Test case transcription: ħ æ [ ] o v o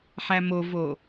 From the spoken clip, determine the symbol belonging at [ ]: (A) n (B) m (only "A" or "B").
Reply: B